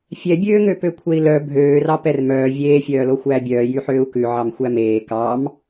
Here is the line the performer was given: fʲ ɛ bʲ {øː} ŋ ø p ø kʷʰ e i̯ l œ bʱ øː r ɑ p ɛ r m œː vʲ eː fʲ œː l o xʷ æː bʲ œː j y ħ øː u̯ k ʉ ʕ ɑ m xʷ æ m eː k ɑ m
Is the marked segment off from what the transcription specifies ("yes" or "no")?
no